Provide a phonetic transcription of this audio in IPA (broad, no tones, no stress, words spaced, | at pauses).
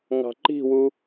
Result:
ŋɑ̤ǃi̤wu